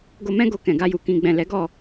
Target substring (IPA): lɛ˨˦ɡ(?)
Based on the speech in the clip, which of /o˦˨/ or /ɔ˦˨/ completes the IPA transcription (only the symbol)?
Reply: ɔ˦˨